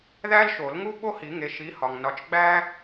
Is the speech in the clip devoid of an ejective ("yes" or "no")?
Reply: yes